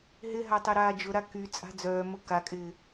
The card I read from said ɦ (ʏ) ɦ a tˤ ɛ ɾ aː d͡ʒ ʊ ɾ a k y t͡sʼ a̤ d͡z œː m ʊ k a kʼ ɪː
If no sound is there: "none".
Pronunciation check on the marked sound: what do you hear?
ɪ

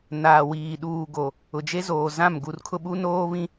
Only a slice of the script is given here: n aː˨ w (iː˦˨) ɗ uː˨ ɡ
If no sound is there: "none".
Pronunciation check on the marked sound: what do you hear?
iː˨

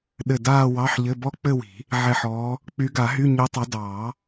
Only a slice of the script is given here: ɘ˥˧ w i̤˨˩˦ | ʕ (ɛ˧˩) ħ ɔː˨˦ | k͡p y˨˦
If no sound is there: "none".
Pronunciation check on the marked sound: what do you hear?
ɛ˧˩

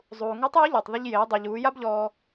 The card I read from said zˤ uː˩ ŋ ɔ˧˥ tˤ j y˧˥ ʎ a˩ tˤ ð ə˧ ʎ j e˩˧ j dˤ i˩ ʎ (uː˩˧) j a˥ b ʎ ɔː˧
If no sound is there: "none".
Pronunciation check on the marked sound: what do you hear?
uː˩˧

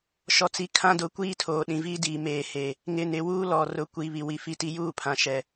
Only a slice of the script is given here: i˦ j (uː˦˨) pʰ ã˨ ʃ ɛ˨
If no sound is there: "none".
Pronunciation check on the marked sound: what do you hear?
uː˦˨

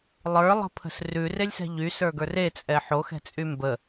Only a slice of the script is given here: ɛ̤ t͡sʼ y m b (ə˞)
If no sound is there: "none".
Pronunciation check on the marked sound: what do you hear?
ə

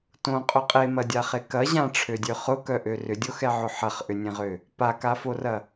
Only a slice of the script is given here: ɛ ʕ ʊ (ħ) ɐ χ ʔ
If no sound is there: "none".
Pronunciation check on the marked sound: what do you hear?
ħ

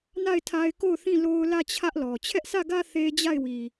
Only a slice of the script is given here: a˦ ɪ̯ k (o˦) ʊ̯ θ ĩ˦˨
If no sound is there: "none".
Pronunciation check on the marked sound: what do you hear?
o˦˨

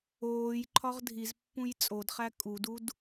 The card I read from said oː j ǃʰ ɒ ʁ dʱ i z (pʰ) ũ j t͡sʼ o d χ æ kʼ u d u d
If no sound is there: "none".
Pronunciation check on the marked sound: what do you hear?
pː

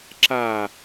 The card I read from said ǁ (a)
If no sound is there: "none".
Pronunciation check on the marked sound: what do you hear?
a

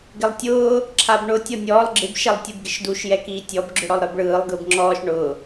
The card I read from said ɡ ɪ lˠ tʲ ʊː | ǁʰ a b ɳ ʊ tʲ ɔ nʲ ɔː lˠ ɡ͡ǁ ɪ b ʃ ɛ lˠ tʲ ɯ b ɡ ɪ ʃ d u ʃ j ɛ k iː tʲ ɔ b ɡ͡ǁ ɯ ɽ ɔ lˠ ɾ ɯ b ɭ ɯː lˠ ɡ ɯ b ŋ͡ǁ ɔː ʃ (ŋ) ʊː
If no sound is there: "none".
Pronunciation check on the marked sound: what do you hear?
ɳ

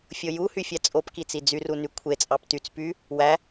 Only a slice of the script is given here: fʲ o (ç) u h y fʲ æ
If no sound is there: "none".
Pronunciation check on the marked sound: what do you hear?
j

